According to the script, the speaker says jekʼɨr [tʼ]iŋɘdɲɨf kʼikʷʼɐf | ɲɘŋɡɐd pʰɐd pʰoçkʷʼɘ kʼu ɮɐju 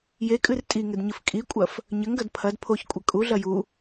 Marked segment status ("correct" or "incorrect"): correct